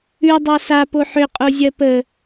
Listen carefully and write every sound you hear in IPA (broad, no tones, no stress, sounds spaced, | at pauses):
ʉ dˤ a s a p o ħ ʏ qʼ o zʲ ɜ p ə